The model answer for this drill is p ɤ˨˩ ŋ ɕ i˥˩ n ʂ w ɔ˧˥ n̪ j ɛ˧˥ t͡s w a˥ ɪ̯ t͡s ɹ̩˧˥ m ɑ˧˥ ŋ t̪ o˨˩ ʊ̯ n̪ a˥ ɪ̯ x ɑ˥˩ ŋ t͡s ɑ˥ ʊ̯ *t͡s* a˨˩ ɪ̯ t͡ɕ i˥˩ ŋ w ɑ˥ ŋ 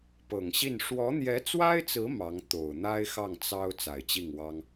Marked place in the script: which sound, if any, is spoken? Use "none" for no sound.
t͡s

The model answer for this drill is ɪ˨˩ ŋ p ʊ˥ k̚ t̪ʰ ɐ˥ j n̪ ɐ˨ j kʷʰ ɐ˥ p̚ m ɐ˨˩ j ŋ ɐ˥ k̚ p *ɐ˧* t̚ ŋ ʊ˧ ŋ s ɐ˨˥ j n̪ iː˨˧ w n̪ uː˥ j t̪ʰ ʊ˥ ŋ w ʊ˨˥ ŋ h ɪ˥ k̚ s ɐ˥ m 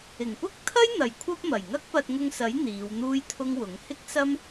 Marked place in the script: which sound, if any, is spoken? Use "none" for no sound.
ɐ˧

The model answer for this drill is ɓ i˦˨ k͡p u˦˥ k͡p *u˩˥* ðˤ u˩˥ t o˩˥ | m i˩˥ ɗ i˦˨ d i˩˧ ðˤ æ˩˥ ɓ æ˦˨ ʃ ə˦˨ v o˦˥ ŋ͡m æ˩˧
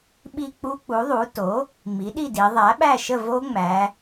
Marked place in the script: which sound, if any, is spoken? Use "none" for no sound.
u˩˥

